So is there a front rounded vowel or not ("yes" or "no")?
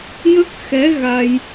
no